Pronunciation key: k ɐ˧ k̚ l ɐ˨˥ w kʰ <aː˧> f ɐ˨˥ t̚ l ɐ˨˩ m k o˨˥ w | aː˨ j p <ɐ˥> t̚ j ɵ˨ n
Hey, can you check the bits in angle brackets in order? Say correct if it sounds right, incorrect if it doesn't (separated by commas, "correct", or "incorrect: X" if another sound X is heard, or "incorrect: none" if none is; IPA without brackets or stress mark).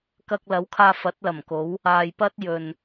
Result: correct, correct